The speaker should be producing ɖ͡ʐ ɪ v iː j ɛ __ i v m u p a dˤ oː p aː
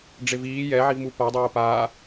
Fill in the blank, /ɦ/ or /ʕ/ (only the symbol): ʕ